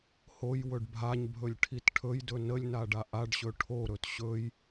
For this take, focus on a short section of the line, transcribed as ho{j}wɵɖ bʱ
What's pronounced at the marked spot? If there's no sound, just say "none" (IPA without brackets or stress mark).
j